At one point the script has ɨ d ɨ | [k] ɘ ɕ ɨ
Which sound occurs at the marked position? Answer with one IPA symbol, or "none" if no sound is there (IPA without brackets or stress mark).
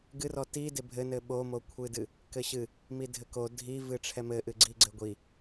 k